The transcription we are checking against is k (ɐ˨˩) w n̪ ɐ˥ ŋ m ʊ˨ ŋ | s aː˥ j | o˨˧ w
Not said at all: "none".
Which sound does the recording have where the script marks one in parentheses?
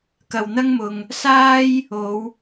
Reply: ɐ˨˩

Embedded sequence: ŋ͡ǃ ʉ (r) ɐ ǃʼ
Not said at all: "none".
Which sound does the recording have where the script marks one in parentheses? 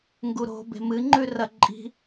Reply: r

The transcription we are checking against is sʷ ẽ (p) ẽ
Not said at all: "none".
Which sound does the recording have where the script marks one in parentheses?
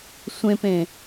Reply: p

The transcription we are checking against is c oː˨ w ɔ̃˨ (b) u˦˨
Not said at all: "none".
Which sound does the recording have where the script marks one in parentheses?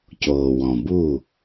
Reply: b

